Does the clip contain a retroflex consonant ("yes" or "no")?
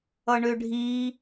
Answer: yes